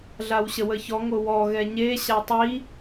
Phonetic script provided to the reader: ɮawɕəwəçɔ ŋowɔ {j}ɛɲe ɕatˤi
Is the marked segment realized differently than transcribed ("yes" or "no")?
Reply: yes